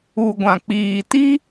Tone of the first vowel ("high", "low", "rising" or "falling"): low